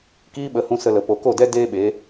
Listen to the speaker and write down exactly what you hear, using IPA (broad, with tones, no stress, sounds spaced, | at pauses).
k iː˦ ɓ ə˨˦ h ũ˧ s ə˧ l ə˨ p o˨ k o˦˨ d ɛ˦ d eː˦ ɓ e˨˦